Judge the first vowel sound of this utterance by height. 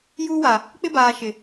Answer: high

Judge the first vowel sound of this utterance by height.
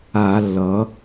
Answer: low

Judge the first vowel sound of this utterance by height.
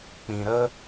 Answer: high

